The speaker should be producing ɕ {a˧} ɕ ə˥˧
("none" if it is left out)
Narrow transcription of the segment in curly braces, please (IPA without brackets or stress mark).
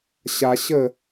a˧